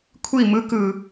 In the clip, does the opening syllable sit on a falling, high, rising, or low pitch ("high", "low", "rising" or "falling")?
falling